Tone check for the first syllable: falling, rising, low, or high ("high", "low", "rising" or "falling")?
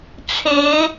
rising